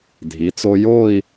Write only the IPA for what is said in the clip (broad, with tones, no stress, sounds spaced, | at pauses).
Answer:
dʱ i˩˧ t͡s o˧ j o˥˧ i̯